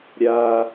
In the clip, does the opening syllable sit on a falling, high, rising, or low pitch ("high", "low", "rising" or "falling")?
high